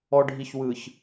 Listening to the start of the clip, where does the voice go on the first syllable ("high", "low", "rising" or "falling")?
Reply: low